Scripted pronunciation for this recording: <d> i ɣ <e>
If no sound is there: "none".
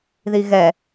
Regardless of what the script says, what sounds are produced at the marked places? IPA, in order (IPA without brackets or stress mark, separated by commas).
ð, ɛ